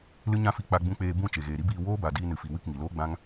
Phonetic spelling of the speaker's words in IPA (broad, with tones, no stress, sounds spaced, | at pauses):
l ɨ˦ ɲ ã˦ f i˧ k͡p a˧ ɡ͡b ũ˧ k͡p eː˧ b ũ˦˨ t͡ʃ e˨ ɣ eː˨ ɾ i˦ b iː˧ w oː˦ b a˨ d iː˧ n ɨ˨ f i˨ w ɨ˦˨ k ŋ i˨ l oː˦ ɡ͡b ã˦ ŋ